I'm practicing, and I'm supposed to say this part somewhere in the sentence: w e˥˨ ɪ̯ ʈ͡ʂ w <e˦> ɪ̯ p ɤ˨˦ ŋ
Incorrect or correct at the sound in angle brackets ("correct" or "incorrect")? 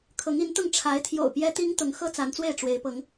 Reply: incorrect